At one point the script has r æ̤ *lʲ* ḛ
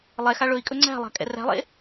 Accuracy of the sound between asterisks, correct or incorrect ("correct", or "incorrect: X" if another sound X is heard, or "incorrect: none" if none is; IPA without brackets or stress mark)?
incorrect: lˠ